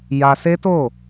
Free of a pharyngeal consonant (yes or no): yes